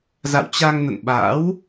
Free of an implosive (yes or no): no